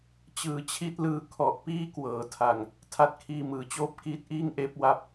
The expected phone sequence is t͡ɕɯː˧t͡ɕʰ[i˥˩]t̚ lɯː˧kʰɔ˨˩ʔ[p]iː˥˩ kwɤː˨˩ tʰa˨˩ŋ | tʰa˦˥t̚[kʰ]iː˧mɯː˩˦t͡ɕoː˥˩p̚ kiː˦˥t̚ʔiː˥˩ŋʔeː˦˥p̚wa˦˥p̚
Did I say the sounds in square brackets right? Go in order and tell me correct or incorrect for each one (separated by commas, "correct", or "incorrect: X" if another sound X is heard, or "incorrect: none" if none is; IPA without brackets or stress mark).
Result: correct, correct, correct